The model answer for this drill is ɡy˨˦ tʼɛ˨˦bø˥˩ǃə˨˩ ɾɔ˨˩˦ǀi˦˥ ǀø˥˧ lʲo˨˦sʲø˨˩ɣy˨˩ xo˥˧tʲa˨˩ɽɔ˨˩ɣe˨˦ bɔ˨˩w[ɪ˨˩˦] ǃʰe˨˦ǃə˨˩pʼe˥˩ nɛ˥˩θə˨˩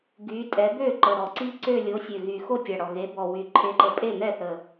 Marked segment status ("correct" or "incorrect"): incorrect